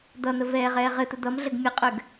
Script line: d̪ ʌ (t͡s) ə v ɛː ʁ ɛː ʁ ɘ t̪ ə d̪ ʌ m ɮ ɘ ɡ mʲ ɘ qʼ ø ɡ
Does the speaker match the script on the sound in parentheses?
no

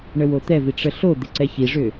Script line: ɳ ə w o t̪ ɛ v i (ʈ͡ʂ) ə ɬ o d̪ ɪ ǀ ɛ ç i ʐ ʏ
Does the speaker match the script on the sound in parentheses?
yes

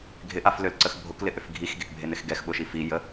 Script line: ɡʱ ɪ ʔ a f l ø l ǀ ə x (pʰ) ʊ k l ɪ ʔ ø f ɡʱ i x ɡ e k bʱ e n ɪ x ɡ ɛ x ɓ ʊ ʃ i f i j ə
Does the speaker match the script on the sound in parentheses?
no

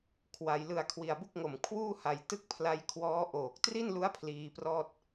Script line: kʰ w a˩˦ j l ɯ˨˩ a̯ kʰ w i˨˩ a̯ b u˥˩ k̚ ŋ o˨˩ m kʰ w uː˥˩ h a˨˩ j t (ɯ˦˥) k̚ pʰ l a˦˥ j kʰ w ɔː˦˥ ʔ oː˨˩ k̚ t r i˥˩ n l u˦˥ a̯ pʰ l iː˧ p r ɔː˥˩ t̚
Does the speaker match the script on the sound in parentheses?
no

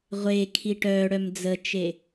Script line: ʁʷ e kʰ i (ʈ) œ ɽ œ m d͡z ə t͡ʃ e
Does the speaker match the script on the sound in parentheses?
yes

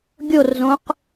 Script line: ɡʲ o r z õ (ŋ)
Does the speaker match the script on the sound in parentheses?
no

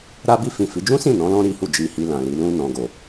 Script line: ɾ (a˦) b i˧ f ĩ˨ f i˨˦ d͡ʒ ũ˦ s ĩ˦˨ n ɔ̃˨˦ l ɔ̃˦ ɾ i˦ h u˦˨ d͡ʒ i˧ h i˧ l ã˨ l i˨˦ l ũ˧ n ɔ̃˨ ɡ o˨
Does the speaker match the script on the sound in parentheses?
no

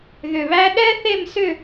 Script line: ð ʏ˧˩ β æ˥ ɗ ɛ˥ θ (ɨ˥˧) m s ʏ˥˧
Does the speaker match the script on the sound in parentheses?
no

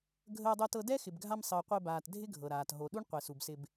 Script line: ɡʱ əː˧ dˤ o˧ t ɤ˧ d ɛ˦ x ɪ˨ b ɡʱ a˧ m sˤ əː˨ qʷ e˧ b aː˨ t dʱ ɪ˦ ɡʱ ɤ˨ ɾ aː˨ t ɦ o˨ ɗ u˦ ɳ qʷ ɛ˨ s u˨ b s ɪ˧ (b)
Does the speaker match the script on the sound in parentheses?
yes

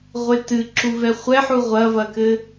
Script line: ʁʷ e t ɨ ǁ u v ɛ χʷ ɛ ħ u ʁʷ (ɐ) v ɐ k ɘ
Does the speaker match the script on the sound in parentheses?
yes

